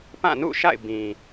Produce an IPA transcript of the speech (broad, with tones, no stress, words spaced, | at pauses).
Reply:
pã˦˨nṵ˦˨ʃa̰˦˨ɪ̯ bĩ˨